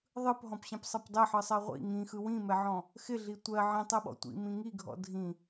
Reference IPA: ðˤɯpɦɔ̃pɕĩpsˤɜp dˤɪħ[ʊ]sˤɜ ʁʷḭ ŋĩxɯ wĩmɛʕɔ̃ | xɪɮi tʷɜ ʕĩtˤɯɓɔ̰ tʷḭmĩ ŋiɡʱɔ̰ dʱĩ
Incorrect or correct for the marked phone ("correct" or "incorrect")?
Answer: incorrect